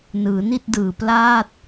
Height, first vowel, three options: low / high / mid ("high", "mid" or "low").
high